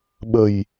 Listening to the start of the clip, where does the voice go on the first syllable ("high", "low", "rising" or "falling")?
low